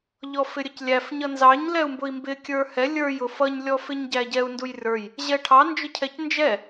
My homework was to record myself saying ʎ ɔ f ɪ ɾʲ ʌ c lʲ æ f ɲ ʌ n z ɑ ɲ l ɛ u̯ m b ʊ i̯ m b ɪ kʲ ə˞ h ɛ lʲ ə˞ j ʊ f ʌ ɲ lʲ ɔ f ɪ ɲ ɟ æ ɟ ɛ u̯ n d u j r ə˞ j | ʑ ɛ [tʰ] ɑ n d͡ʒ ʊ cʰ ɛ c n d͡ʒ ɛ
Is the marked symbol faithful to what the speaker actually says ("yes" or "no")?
no